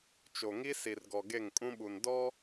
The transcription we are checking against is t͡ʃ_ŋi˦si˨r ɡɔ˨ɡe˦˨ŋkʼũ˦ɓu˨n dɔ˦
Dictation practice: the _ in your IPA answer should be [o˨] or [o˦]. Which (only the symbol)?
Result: o˨